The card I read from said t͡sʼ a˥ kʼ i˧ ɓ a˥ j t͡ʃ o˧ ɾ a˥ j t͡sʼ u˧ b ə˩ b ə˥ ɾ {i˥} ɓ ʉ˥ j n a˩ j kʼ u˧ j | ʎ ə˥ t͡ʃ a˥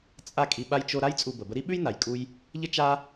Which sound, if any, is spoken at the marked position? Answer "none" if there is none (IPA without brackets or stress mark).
i˥